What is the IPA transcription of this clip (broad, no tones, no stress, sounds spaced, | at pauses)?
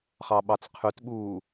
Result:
χ ɑ ɓ ɑ t͡s qʰ y t ɓ uː